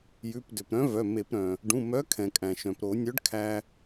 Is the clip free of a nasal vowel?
no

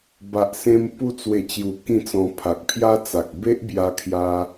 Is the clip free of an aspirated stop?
no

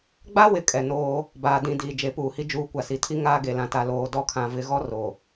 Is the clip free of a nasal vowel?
no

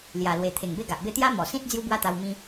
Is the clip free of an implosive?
yes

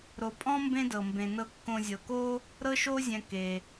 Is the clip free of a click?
yes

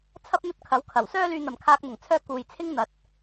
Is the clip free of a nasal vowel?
yes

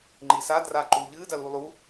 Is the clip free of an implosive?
yes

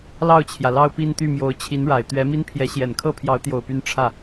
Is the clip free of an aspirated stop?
no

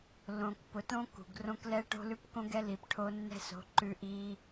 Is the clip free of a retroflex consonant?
no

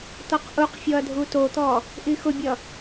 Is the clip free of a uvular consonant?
no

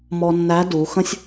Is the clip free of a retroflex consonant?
yes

